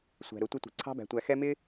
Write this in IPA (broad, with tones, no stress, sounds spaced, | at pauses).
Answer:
sʷ æ̤˨ ɾ ʊ˨˦ tʷ ʌ˦ tʷ i̤˨ ǀʰ ɑ̤˦ b æ̤˨ tʷ æ˨ x ɛ˦ m ɪ˦